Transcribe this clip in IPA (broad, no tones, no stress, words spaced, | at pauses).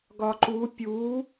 ɡɒǃu pʲu